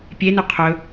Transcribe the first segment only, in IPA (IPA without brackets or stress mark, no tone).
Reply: pʲ